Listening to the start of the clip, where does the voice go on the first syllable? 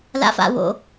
low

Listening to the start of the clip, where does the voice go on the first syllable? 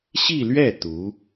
falling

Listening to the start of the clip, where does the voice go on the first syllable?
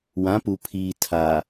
rising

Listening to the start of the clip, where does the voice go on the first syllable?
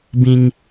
high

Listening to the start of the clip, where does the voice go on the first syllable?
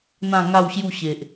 falling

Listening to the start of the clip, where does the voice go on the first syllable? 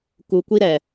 low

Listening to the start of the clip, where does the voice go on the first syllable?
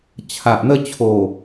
low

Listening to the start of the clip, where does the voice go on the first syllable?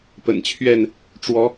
low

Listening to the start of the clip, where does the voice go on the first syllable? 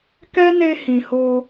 high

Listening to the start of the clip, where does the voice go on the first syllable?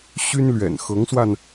high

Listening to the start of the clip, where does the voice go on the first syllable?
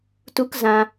high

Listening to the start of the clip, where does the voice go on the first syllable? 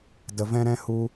low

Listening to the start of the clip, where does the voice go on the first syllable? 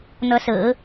rising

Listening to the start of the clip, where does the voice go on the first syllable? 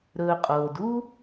low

